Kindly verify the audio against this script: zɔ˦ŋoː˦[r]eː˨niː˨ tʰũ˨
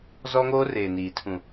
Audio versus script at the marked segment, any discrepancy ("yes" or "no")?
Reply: no